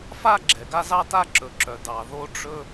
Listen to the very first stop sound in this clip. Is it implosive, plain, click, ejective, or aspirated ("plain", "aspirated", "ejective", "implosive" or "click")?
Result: click